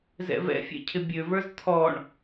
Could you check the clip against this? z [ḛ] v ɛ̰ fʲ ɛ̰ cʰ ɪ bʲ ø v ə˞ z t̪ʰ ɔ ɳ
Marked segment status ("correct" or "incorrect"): incorrect